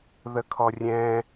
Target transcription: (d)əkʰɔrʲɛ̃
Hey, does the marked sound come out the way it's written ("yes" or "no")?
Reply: no